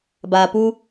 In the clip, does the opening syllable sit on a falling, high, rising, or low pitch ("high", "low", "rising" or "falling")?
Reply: low